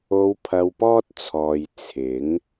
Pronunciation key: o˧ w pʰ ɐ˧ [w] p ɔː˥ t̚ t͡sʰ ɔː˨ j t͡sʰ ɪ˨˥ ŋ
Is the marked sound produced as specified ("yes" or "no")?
yes